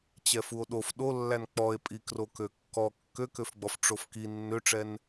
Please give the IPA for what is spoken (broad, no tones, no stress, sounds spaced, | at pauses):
t͡ɕ ɛ f u o̯ ɗ o f ɗ o lː æ n k͡p ɔ e̯ pʼ i k r o k ø kː ɔ kː ø k ø f ɡ͡b ɔ f ʈ͡ʂ o f k i nː ø ʈ͡ʂ ɛ n